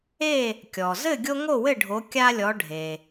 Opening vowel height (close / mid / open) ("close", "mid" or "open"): mid